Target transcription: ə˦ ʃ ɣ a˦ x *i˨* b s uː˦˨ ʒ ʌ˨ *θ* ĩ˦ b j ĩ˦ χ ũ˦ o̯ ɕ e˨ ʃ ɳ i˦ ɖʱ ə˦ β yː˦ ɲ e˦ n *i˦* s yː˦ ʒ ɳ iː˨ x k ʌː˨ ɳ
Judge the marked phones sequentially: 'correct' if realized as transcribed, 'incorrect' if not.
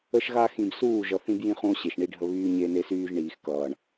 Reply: incorrect: ĩ˨, correct, incorrect: e˦

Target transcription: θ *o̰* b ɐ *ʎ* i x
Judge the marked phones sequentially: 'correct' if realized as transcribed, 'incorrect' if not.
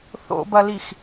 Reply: correct, incorrect: l

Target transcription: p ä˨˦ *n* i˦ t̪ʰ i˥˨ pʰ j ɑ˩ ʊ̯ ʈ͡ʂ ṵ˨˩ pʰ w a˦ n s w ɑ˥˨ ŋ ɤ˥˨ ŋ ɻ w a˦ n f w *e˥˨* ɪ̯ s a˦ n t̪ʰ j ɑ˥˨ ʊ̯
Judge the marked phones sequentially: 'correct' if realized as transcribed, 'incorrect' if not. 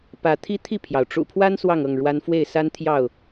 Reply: incorrect: t̪ʰ, correct

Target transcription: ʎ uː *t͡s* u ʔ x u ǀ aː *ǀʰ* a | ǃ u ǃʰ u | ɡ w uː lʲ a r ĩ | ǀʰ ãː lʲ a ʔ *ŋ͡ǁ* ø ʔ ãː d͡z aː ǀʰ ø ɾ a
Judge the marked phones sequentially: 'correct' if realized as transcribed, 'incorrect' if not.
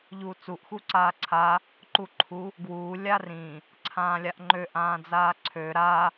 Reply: correct, correct, incorrect: ŋ͡ǃ

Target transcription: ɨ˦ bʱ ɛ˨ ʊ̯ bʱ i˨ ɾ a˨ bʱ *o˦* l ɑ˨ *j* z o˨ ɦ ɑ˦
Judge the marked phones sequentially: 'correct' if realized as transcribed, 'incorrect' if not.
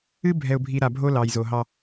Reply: correct, correct

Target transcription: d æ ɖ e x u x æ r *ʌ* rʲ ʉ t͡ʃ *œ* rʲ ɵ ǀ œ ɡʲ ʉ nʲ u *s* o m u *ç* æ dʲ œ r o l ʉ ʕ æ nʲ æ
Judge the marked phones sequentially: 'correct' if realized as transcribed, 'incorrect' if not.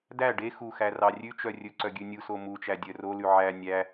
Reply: incorrect: ɑ, correct, correct, incorrect: t͡ʃ

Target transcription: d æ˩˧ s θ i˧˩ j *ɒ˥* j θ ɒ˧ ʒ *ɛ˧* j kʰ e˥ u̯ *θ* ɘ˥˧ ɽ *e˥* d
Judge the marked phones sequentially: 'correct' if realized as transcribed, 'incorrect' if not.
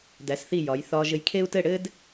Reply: incorrect: ɒ˩˧, incorrect: ɘ˧, incorrect: t, incorrect: ɘ˥

